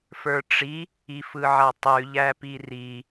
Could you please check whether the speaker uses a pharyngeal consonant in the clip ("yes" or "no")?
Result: yes